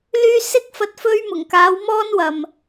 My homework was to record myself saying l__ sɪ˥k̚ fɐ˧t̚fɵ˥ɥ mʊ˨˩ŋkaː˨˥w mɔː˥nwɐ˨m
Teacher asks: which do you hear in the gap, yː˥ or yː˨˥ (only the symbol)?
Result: yː˥